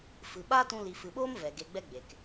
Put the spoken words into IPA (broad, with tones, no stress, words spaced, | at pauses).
fɨ˨ ɓaː˦tũ˧ li˨fɨ˨ɓoː˦m vɛ˨ ɡe˧ɡ͡bɛ˦ɡ͡beː˨k